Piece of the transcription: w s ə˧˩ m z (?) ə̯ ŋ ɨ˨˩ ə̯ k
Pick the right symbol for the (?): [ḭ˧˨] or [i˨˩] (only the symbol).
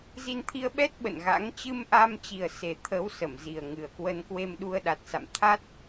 i˨˩